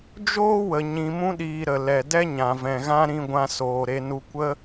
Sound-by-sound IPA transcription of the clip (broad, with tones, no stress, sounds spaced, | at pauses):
d͡ʒ oː˦ w ə˨ ɲ ĩ˨ m ũ˧ ɗ iː˨ ɾ ə˨ l ɛ˨ d ɛ˦ ɲ ã˨ v ɛ̃˨ ɣ ã˦ ɾ ĩ˧ ɡʷ ã˧ s oː˨ ɾ e˧ n u˧ kʷ ə˦